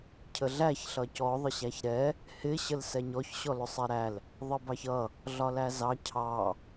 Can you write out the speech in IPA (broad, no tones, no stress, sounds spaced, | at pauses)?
cʰ ə ɮ æ ç ɬ ʌ c ɔ ðˤ ə ɕ æ ç ɾ ɛ | h ɪ ɕ ə l s ɛ ɲ ɔ ç ɕ ɔ l ʊ sˤ ɛ ɾ æ l | ðˤ ə b ɑ ç ʌ | ɮ ɒ l æ z ɑ cʰ ɑ